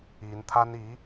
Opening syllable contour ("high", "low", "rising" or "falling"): rising